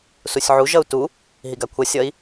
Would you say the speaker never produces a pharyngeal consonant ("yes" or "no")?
no